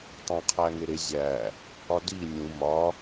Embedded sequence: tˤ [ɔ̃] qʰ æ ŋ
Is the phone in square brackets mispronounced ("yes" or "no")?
yes